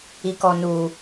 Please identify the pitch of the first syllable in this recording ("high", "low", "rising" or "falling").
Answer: low